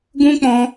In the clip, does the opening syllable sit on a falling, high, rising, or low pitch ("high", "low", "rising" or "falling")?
high